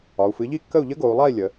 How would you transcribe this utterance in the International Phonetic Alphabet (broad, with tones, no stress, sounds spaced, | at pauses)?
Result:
ɒ˩˧ u̯ f ɨ˩˥ ʎ i˥˨ kː ə˥˨ u̯ ʎ ə˦˥ ɡ o˩˧ u̯ lˠ a˥˨ i̯ lʲ ə˩˧